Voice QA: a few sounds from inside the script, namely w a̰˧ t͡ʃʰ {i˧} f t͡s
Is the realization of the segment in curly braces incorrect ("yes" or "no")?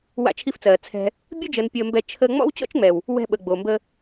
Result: no